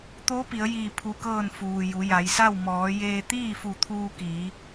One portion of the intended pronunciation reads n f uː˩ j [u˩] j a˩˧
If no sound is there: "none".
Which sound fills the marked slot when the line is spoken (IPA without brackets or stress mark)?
u˩˧